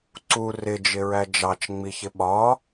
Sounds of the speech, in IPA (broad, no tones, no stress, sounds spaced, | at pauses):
ǀ u r ɪ d͡ʒ ɪ ɹ æ d͡ʒ ɑ t͡ʃ ŋ͡m i ç ɪ ɓ ɒ